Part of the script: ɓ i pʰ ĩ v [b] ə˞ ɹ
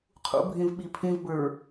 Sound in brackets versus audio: correct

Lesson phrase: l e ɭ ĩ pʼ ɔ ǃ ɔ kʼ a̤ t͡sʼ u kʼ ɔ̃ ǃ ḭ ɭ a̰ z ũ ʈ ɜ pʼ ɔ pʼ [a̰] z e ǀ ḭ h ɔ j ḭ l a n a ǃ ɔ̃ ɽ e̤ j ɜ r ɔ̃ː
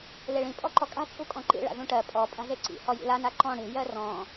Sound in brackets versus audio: incorrect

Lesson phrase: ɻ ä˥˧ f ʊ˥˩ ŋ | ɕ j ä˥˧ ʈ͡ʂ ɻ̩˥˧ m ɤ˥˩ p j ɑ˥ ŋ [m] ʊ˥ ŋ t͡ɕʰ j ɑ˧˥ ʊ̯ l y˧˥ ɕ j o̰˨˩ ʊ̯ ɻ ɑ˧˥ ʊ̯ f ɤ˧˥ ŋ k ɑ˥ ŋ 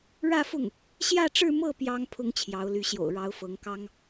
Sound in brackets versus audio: incorrect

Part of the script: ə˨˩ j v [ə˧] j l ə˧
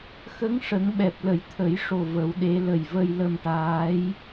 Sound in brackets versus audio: correct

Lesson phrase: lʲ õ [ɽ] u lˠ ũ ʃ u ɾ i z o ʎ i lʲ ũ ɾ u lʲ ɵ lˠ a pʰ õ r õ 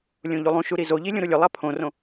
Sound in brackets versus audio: incorrect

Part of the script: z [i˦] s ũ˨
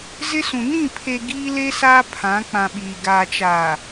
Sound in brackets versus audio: incorrect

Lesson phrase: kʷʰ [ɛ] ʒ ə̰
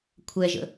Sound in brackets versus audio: correct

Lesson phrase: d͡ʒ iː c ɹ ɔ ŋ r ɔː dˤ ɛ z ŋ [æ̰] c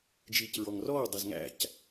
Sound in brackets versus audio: correct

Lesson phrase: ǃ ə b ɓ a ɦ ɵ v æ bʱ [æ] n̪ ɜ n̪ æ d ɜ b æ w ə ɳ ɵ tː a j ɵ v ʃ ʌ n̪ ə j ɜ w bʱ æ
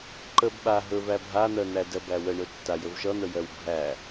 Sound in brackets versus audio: incorrect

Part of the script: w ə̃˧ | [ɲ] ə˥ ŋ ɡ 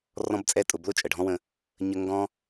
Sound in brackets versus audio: correct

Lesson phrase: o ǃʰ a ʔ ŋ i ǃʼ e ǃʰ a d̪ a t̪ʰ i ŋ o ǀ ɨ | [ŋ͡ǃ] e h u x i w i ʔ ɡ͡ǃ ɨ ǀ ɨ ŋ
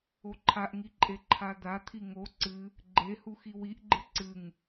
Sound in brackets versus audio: incorrect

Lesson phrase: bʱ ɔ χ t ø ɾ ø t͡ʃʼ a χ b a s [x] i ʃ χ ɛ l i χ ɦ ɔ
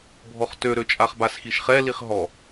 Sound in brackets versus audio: correct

